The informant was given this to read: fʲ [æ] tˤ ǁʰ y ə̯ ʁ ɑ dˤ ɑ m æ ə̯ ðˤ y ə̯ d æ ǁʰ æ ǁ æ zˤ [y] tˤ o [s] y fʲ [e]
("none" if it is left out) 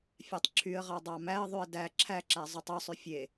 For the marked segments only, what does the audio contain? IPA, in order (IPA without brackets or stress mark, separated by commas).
æ, y, sˤ, e